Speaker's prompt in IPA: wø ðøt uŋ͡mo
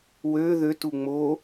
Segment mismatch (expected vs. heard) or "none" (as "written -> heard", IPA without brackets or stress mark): none